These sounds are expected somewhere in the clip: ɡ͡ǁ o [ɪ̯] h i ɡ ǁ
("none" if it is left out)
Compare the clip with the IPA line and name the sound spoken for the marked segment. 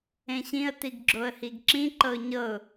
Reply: ə̯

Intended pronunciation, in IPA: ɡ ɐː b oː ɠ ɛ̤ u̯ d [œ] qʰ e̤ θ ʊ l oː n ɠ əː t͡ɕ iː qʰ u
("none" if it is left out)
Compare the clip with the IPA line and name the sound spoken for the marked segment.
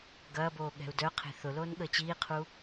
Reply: œ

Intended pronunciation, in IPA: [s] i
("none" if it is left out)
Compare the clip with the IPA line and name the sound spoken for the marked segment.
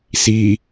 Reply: s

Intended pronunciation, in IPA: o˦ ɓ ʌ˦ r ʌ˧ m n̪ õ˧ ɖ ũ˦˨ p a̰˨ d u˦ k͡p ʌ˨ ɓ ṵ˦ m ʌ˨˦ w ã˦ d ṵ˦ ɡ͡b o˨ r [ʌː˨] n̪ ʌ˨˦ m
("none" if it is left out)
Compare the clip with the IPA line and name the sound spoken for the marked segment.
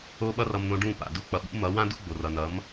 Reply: ʌ˨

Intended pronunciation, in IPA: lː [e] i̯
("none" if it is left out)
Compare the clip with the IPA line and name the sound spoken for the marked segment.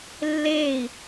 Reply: eː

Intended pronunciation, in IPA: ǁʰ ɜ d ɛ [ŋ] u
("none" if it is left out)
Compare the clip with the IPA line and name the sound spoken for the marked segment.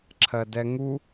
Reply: ŋ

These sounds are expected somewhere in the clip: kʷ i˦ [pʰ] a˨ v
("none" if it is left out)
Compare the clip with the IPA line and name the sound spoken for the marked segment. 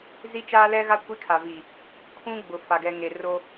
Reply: kʰ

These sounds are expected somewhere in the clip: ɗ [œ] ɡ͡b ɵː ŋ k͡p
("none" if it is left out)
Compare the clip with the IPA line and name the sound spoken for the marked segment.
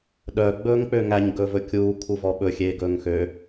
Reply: œ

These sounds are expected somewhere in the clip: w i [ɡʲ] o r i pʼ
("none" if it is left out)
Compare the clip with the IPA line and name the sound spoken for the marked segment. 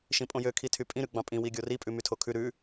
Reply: ɡʲ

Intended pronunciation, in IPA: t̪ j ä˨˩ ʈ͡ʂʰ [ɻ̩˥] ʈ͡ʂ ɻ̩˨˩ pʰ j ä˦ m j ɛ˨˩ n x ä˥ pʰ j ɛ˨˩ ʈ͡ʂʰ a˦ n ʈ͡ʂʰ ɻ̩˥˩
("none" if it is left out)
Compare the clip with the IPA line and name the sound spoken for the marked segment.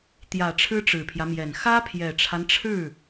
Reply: ɻ̩˥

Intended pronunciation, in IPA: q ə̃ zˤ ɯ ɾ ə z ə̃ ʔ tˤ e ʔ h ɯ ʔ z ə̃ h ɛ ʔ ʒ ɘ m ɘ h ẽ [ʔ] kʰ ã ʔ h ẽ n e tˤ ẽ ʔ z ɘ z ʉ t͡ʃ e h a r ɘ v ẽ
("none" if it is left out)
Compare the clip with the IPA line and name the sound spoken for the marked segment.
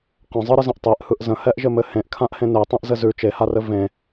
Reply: ʔ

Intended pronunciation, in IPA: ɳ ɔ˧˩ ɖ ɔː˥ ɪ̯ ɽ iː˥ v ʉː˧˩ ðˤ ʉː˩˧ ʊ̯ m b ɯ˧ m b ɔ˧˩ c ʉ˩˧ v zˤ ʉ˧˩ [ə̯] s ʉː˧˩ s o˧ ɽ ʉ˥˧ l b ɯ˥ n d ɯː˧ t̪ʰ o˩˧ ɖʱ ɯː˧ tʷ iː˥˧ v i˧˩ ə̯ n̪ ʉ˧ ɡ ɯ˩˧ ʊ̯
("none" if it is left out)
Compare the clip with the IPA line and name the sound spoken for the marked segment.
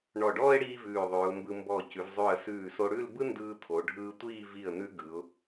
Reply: ə̯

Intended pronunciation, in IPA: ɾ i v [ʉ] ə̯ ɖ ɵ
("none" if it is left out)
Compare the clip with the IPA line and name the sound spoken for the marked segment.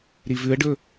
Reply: ʉ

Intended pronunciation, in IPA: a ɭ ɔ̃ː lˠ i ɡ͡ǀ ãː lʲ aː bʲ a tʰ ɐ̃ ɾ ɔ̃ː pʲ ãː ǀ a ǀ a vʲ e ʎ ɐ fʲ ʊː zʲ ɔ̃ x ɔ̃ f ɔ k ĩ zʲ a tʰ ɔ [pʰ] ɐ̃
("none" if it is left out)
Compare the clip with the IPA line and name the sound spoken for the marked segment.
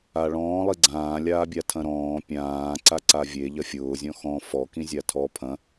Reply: pʰ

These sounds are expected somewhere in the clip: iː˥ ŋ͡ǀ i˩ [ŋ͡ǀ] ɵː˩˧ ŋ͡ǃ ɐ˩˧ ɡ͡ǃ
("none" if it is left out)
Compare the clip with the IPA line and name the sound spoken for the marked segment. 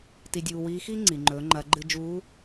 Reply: ŋ͡ǃ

